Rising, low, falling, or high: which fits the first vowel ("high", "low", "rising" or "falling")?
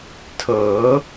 rising